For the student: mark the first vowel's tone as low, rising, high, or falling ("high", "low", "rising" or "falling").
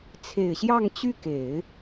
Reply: low